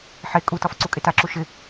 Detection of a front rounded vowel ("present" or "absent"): absent